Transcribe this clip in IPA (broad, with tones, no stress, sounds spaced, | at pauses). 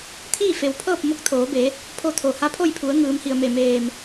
t̪ʰ iː˥˨ f e˩˧ w pʰ ɤː˥˨ p̚ m o˧˥ k̚ t̪ʰ oː˩˧ b e˩˧ | pʰ o˥˨ t̪ʰ o˧˩ h a˧˥ pʰ o˥˨ j pʰ u˩˧ ə̯ ŋ ɯː˩˧ m h i˩ ə̯ m e˧˩ m eː˧˩ m